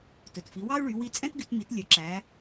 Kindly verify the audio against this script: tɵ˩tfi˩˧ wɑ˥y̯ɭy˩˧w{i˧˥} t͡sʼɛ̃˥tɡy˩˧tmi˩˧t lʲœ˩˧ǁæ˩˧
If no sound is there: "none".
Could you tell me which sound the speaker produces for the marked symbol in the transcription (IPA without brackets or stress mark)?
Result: i˧˥